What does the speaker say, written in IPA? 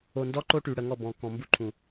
o˨ndɔ˦ǃo˦ ʈy˨ɽə˨ŋɔ˦˨ bɔ̃˨kɔ̃˨mbu˦ǃʰũ˨

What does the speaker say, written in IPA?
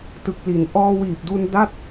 tɯ˨˩k̚li˩˦n ʔɔː˧wiː˨˩p̚du˧n da˥˩t̚

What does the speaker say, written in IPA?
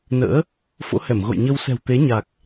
nə̰ː˧˥ | fo̰˧˥hɛ˧˩mɣo̰˧˨j ɲə˧wsɛ̤˨˩wt̪e˨˦ɲa˨˩k̚

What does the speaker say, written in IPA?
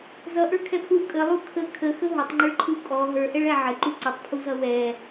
zʌʔə˞kʰɛpʰlu kʼəlˠu kʰə kʰəxə ɦʊtˤŋ͡ǃəɭǃʰu kʼɔ ɦə˞ʔɛɭæ ʕəǃu ǀʊtˤpʰuzʌ wɛ

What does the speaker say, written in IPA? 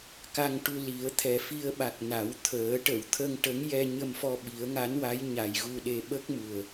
ka˧ŋʈu˧ li˨˩˦ə̯ t̪ʰɛ˨˩ fi˧ə̯ɓa˨˩k̚ na˨˩˦wt̪ʰəː˨˩˦ ʈə˨˩˨wt̪ʰə˧ŋ ʈə˧˥ŋ jɛ˧ɲə˧mfɔ˧ ɓi˨˩˦ə̯ŋa˧˥nwa˧˥j ɲa˨˩jɣu˧ɗe˧ ɓə˦˥k̚mu˨˩ə̯

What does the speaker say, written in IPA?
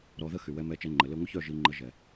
ɾɔ˧ðə˦xy˨ wɛ˧mɛ˧t͡ʃɛ˧ ŋ͡ǃə˨ le˧ŋʷə˦çœ˦˨ ʒi˧ŋ͡ǃə˧ ʒɛ˨

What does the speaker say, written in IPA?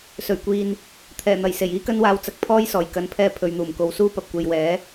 sɵ˨˩ɥkʷiː˨n | t̪ʰɛː˨˩n̪ɐ˨˩j se˨˩jiː˥kɐ˥nwaː˧w t͡sɐ˨˥k̚pʰɔː˥jsɔː˨˩j kɐ˨npʰɛː˧ pʰɵ˨˧ɥn̪uː˨˩mko˨˥wsuː˥ pɐ˨p̚kʷe˨jwɛː˨˥

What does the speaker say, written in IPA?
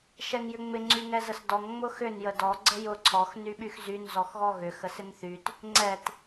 ʃɛŋjʏŋ͡mɪ ŋ͡ǀyŋɛzəsdɔŋ ŋ͡mʊxʏn jədɔ ɡ͡ǀəjʊ ǀʰɔx nyɓyxzyn zɔxɣɔɣʏ xəsɪnθyt | ŋ͡ǀɛt

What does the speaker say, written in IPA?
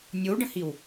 nʲowɖə̃hiw

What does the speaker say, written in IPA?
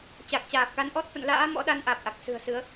t͡ɕa˨˩k̚t͡ɕaː˨˩p̚ka˧n ʔɔ˦˥t̚fə̰˧˨nla̰ː˧˥ mɔ̰˧˥ɗa˧n ʔaː˨˩p̚ʔa˨˩k̚ sɨ̤˨˩ə̯sɨ˨˦ə̯

